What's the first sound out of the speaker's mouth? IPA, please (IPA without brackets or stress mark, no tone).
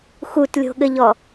x